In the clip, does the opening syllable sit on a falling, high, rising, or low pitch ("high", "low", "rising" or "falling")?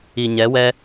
low